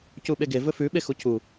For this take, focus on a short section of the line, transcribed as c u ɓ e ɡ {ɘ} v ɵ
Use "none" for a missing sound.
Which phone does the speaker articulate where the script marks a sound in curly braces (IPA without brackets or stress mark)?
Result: e